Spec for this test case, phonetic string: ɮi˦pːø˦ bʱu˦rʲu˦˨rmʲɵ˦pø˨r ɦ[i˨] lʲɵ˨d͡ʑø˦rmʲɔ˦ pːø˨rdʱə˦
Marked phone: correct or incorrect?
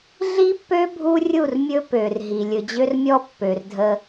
correct